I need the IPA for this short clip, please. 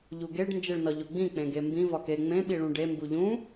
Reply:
ʎ u ɡ e ɖ n d͡ʒ e ɭ n ɒ ʎ o ɡ͡b ĩ k͡p ẽ ɡ e m b ĩ v ɒ k e ŋ͡m ẽ ɓ i ɭ ũ ɖ e m b u ʎ ũ

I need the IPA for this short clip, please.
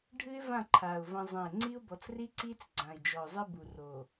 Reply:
ɖʱ ɨ˦ ɪ̯ v ã˦˨ ǃʰ aː˨ ʊ̯ v ɐ̃˦ zˤ ɐ̃˦˨ ɪ̯ ŋ͡ǀ i˦ ʊ̯ b ɔ˨ t͡s r i˦ ǀ iː˦ t͡s ɡ͡ǀ ã˨ ɪ̯ d͡ʒ ɔ˨ ʊ̯ zˤ ɨ˦ b u˨ r o˨

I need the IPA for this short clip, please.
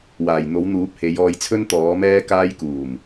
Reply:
w aː˨˩ j n̪ o˨˥ w n̪ uː˨˥ p̚ h e˨˧ j ɔː˧ j t͡sʰ ɵ˥ n t̪ ɔː˨˥ m ɛː˥ k aː˥ j k uː˨˩ m

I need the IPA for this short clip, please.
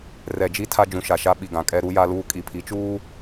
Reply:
r ɛ˨ d͡ʒ i˦ tʰ a˦ d͡ʒ ũ˨ ʃ a˨ ʃ a˦ ɓ i˨ ɡ ã˨ kʼ ɛ˦ ɾ u˦ j a˦ l uː˦ kʼ i˨ pʰ i˨˦ t͡ʃ uː˦

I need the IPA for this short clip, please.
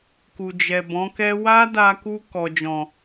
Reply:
k u˨ d͡ʒ ɛ˨ b ɔ̃˨˦ k ɛ˦ w a˦ d a˧ k u˧ k ɔ˨ d͡ʒ ɔ̃˨

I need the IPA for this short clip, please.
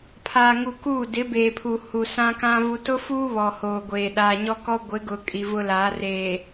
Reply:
pʰ aː˨ ŋ u˨ k uː˦˨ d ɪ˨˦ b eː˨ pʰ u˨ h u˨ s ã˦ k ã˦ v u˨ t ʊ˦ f uː˦ β ɔ˨ h oː˨ ɡʷ eː˨ ɗ aː˨ ɲ ɔ˦ k ɔ˦ ɡʷ ɪ˨˦ ɡ ʊ˨ kʼ i˨ v ʊ˦ l aː˨˦ r eː˨

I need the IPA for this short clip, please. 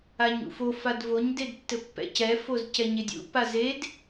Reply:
a ɲ ṵ f o f a d v o ɲ d e d tː ɘ pː ɛ̰ c ɛ f o z c ɛ ɲ e dʲ ṵ p a z e d

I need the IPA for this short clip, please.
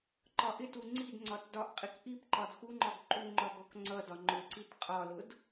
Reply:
ǃ ɒ ʔ ɪ t u ŋ͡ǀ i d ŋ͡ǀ ɒ t d ɒ ʔ qʼ i k ʔ i p ǃ ɒ d x u ŋ͡ǃ ɒ ɡ ǃ u ŋ͡ǃ ɒ ɡ ɔ k ŋ͡ǀ ʌ d ɒ ŋ͡ǃ ʊ ǀ i t qʼ ɒ l ʊ d

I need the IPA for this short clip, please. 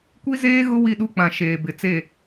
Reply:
kʷ i˦ z eː˦ ɣ ʊ˦ w i˦˨ ɗ u˦ k͡p ã˨ ʃ eː˨ b ɪ˨ t͡s e˦˨

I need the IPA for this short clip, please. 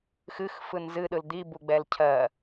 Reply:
x ɨ x f ɯ n z ɨ ɗ ɯ l d̪ i b u ɡ͡b ɛ l cʰ ɜ

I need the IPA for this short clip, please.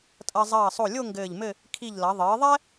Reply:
tʼ ɐ˧ zˤ ɐː˧˩ sˤ o˧˩ lʲ o˥˧ ŋ ɡ ɘː˧˩ ʎ m ɘ˥˧ | kʰ i˧˩ ʎ l ɐ˩˧ ðˤ ɘː˩˧ ðˤ ɛ˥

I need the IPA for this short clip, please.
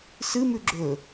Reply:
s ɨ m ʉ ɡ͡ǁ ɵ

